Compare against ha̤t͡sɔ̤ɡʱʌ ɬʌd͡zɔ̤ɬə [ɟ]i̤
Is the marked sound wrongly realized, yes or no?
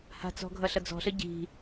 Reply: no